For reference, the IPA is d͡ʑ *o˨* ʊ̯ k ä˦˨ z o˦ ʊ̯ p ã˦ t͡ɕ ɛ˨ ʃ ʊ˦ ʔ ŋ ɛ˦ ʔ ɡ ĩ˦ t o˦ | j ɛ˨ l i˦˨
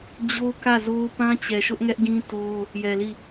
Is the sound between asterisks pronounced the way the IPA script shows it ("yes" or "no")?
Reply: no